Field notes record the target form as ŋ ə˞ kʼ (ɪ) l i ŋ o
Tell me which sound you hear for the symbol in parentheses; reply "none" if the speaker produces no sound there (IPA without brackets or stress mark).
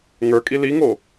i